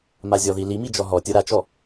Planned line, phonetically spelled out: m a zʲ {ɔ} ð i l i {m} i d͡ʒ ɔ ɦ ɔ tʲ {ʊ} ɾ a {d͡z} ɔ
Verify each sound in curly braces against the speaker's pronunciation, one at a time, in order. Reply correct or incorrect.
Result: correct, correct, correct, incorrect

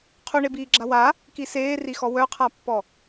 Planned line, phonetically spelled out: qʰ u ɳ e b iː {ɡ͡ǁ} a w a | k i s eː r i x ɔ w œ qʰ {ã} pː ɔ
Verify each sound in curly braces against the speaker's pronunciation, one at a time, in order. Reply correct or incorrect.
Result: correct, incorrect

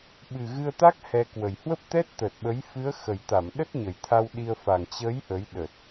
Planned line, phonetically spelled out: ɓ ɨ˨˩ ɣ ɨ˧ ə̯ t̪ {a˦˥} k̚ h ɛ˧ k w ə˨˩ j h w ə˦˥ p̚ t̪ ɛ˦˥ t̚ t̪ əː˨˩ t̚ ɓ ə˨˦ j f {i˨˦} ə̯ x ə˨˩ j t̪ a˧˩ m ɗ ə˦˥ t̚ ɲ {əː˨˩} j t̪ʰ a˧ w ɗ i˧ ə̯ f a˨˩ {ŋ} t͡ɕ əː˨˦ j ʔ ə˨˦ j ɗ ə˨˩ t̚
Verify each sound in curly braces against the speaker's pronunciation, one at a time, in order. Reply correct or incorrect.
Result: correct, incorrect, incorrect, correct

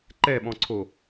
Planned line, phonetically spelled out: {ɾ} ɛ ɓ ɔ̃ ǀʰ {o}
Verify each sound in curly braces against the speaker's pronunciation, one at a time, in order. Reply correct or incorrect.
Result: incorrect, correct

